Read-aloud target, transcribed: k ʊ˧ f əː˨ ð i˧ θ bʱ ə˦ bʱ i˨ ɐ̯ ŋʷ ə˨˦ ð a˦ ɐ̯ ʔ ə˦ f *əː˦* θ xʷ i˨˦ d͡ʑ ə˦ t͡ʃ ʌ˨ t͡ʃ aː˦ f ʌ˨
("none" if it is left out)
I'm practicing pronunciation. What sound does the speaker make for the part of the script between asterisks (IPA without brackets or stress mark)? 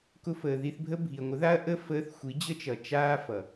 əː˦